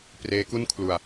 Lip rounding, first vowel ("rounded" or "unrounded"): unrounded